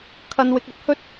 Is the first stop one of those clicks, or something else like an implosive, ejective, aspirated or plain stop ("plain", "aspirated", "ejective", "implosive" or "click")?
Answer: aspirated